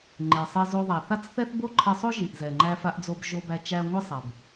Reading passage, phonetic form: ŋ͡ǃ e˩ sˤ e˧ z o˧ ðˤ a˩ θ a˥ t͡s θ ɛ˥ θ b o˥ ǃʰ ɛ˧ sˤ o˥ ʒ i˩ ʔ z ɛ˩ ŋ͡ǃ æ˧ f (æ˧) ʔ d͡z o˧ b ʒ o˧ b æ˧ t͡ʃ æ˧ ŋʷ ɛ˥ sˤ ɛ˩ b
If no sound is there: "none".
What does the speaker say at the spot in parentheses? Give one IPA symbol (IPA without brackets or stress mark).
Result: a˧